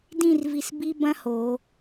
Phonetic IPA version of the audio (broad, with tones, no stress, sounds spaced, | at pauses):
d ĩ˥˧ r v i˧ s b i˥ b ɐ̃˥ h o˩˧